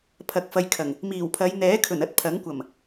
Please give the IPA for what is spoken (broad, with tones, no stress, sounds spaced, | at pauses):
pʰ ɐ˨ k̚ f ɐ˧ j kʰ ɐ˨˩ ŋ | m iː˨˩ w pʰ ɐ˨˧ j n̪ ɛː˨˥ kʰ ɵ˨˩ n ɐ˥ t̚ pʰ ɐ˨˥ ŋ kʷ ɐ˨˩ m